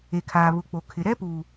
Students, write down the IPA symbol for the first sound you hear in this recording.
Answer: e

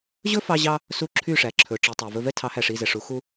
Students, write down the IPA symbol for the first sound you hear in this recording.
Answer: ʑ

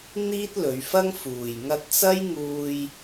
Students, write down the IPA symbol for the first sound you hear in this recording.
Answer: n̪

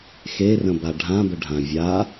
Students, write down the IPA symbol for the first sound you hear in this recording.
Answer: x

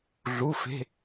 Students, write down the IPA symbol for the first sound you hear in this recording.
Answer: ɮ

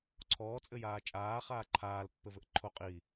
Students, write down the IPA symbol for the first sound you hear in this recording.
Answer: ǀʰ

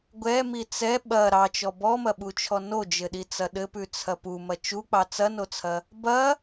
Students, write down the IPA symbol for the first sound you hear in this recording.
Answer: ɡʷ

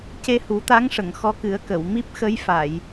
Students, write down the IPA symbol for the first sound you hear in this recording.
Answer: c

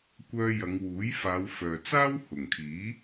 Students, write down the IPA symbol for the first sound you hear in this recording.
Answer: kʷ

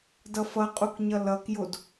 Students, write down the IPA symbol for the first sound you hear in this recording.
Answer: d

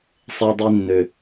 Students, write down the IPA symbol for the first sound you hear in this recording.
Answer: sˤ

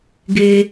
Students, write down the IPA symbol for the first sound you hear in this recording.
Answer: ɡ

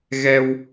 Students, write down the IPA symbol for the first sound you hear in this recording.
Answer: ɣ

